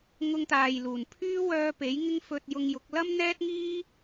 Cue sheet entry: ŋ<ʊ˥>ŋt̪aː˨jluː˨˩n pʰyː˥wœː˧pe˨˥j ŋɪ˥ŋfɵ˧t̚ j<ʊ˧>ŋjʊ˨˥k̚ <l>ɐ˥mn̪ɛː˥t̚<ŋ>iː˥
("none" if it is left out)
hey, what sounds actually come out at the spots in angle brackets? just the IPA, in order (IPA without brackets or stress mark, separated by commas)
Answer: ʊ˧, ʊ˧, l, ŋ